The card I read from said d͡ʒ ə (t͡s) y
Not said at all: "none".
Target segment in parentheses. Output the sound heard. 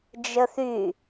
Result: θ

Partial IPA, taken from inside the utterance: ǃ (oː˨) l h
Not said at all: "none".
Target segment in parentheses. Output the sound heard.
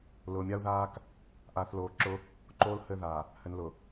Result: oː˦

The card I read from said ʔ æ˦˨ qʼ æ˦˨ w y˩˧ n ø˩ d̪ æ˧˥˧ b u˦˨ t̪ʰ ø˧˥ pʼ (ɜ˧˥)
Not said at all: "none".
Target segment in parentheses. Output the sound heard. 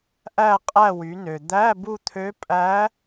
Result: æ˧˥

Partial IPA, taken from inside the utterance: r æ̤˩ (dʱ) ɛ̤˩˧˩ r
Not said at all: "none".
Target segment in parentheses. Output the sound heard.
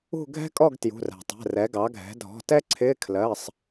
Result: tˤ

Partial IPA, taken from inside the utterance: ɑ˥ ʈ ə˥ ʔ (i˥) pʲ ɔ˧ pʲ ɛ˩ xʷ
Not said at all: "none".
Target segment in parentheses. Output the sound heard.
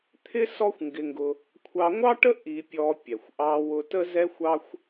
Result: i˧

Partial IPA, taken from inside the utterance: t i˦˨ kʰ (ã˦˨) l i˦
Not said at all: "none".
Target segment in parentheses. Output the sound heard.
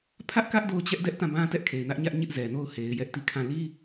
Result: ã˦˨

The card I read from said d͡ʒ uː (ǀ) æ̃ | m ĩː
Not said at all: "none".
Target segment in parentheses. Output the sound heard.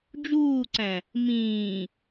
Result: ǀ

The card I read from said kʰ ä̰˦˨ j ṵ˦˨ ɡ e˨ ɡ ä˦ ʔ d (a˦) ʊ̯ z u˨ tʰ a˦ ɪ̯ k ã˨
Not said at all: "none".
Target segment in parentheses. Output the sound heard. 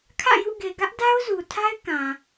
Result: a˦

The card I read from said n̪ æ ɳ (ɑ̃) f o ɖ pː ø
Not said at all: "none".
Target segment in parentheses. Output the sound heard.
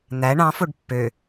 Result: ɑ̃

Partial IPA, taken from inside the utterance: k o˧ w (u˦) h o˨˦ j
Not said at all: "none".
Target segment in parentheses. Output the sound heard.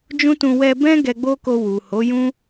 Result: u˨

